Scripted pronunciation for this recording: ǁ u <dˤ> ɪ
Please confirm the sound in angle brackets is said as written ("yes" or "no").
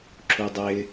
yes